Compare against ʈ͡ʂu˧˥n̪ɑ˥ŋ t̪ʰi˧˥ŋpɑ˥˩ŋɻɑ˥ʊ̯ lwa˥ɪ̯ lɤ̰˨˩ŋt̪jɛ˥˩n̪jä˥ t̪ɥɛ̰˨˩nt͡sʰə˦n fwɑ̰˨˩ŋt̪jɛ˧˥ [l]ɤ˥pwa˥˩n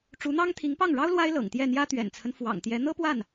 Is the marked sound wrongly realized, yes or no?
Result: yes